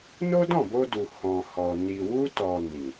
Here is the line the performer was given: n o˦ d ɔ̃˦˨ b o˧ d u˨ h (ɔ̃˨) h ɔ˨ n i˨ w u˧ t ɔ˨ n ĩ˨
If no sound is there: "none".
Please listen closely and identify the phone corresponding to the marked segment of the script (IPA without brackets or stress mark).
ɔ̃˨